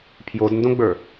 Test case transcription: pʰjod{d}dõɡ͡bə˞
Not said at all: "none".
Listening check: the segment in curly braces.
n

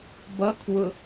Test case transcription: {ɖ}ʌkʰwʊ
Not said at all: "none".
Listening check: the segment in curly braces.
b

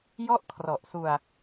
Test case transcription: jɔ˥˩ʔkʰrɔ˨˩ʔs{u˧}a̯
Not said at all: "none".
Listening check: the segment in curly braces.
u˧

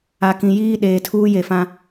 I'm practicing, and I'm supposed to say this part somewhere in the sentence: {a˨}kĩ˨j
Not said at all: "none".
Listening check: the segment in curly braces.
a˨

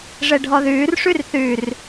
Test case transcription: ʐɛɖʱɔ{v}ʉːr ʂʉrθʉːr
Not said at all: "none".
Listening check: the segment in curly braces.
ð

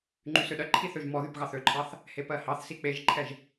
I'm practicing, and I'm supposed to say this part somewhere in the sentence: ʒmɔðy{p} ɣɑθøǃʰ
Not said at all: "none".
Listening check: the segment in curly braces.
p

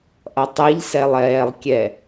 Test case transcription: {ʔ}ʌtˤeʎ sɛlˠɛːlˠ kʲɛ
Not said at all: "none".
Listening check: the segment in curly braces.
ʔ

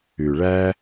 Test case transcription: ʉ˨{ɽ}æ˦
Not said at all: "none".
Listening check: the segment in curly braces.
ɭ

